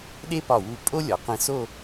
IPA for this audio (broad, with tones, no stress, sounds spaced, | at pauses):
ɗ e˥ p ɒ˧˩ w u˧˩ pʼ o˥ lʲ ɒ˩˧ q ĩ˧ s o˥˧